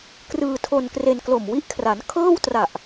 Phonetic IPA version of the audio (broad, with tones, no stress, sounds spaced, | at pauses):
k r ɯː˧ tʰ o˧ n k r e˧ n k l o˨˩ m w i˦˥ ʔ kʰ r a˩˦ n kʰ ɤː˥˩ w t r a˨˩ ʔ